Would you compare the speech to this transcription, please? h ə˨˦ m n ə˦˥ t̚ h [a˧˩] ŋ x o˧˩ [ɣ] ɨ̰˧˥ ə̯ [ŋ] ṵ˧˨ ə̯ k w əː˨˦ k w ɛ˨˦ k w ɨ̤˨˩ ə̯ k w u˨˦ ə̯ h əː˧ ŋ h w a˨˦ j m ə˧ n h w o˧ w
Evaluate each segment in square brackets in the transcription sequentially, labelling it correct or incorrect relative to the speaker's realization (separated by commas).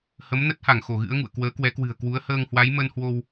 correct, correct, correct